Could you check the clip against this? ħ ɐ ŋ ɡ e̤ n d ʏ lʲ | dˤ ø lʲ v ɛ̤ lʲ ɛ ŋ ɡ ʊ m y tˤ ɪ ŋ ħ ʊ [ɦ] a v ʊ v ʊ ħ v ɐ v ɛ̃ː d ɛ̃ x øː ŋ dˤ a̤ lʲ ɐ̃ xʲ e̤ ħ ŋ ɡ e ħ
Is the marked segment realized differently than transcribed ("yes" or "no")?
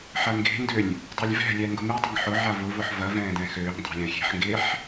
yes